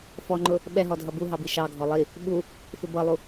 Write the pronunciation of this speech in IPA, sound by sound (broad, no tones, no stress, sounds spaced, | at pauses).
f ɔ ŋ͡ǃ ʊ | ɓ ɛ ɦ ɔ dʱ ʌ b u ɦ ɑ b i ʃ ɑ ɡʱ ɔ lˠ i | ɓ u | f ɪ b ʌ lˠ u